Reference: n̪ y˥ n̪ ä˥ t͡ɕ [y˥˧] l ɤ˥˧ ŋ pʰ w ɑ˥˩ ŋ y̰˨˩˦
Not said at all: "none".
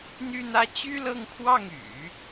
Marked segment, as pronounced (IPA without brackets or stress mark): y˥